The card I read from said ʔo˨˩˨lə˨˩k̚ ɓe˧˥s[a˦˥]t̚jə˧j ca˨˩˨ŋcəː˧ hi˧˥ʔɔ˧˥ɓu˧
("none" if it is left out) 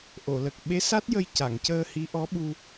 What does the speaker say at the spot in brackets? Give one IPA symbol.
a˦˥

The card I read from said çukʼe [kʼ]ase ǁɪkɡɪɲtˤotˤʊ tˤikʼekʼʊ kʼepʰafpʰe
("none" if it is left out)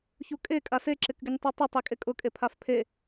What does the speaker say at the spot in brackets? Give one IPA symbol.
kʼ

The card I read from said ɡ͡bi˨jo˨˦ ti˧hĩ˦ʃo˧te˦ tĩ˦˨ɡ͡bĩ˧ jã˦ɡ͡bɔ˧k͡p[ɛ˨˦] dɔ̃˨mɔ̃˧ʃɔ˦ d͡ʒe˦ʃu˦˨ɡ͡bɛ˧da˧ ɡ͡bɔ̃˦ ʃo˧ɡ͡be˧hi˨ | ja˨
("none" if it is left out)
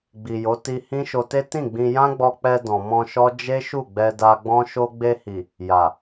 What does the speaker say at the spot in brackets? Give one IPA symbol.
ɛ˧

